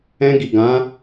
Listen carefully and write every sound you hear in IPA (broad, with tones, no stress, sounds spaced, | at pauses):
ɛ̃˧ ɡ i˨ ɡ ã˨˦